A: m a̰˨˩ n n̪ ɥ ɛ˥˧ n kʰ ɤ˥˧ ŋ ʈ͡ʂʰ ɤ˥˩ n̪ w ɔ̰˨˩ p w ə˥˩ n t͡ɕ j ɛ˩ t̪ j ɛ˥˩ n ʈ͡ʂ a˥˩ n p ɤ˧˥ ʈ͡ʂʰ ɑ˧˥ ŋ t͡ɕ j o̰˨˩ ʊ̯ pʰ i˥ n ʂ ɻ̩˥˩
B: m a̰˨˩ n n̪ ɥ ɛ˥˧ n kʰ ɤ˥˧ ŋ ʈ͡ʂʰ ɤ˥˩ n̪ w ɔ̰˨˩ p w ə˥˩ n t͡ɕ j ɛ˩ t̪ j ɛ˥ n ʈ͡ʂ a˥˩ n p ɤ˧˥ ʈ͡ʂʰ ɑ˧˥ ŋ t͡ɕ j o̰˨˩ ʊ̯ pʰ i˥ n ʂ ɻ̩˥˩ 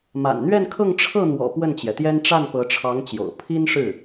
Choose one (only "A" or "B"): B